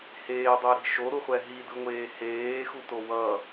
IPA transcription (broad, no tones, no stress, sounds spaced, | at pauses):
h eː dˤ e ɾ i̤ ʃ o ɾ u χʷ ɛ ɦ i d ɯ ŋʷ eː h eː x u t o w ʌ